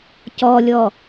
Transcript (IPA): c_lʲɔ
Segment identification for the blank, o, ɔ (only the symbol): ɔ